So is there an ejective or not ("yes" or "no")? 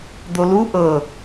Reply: no